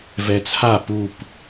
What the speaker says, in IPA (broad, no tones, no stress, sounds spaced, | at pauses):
v ɛ t͡sʰ a p u p